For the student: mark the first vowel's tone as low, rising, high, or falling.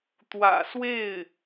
low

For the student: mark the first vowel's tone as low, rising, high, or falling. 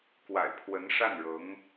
low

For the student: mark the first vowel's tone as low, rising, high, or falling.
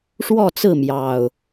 falling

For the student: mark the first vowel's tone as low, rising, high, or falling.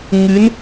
rising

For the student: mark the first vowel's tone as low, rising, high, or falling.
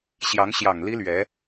rising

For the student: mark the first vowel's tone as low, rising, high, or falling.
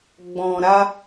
low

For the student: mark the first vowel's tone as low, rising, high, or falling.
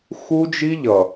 high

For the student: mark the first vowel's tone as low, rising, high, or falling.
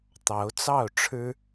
rising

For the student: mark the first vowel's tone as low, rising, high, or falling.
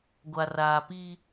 low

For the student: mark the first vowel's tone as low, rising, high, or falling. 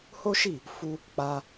high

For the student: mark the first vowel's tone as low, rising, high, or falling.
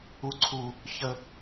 high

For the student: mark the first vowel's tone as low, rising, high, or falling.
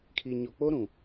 low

